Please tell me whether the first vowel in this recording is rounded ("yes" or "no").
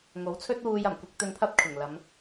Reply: yes